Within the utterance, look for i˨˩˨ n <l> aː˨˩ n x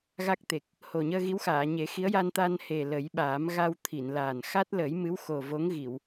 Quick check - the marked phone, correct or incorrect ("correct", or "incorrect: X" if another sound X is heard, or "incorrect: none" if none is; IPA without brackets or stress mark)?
correct